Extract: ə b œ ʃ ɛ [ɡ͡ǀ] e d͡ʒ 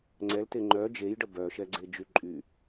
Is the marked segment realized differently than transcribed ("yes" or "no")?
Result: no